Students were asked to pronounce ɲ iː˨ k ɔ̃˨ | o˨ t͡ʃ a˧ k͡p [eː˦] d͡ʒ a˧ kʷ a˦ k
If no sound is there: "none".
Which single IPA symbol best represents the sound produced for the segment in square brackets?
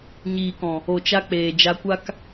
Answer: eː˨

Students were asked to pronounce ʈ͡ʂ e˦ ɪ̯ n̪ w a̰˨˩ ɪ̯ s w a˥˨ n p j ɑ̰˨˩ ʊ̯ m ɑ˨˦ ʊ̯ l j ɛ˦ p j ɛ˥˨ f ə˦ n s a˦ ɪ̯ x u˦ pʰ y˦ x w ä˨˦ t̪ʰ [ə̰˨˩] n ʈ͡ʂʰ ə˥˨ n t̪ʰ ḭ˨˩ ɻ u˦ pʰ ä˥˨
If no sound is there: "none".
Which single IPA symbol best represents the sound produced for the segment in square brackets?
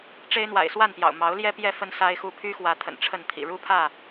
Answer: ə̰˨˩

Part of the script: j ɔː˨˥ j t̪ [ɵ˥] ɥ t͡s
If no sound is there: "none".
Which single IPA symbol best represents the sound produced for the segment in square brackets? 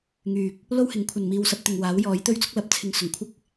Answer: ɵ˥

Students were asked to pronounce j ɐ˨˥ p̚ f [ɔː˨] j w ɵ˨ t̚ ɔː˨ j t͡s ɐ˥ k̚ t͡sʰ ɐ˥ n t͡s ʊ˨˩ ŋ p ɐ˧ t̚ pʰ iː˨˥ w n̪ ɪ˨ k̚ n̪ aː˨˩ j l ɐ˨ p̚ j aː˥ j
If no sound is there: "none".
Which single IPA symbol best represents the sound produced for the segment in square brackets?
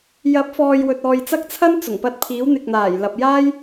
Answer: ɔː˨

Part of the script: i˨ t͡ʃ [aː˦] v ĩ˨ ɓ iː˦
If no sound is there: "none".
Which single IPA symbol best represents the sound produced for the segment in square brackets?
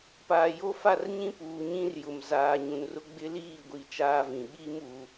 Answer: aː˦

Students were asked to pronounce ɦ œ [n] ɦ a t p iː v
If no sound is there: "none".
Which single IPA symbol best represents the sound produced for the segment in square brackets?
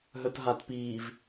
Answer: t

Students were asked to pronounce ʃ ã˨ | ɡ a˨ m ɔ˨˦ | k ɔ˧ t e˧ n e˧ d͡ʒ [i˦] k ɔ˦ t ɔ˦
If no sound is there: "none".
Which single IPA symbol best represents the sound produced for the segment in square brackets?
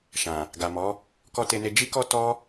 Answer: i˦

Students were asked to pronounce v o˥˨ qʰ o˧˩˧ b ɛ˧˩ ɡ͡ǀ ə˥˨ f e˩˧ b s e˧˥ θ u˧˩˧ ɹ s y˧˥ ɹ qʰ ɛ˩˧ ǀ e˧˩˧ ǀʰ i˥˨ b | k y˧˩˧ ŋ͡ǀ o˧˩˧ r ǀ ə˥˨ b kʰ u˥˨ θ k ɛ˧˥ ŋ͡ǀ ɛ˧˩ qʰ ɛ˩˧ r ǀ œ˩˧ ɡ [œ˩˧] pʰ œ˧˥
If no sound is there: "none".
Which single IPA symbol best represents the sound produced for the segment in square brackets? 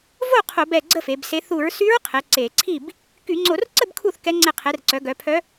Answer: œ˩˧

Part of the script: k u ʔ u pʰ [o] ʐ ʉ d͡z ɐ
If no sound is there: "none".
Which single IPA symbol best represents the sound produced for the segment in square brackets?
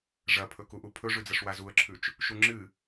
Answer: ɵ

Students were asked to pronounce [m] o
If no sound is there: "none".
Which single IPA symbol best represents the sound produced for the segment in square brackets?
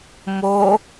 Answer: m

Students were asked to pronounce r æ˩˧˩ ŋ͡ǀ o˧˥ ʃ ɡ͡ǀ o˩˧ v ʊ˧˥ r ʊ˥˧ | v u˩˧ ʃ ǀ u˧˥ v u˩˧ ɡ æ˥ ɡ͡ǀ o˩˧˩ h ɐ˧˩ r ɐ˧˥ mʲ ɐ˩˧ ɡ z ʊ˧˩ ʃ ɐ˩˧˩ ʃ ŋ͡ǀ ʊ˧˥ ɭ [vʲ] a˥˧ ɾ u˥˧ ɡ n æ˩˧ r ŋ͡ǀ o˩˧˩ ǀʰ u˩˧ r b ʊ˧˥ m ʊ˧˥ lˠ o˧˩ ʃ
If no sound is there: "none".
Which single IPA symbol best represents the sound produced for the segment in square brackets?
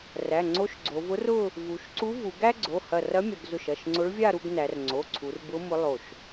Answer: vʲ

